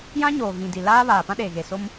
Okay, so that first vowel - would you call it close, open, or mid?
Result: open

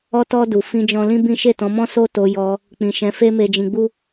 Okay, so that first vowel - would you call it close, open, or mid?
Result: mid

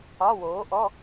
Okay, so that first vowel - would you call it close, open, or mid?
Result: open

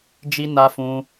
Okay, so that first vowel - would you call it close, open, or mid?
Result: close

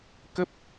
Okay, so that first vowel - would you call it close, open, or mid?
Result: mid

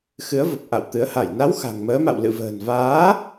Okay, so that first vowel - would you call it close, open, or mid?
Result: close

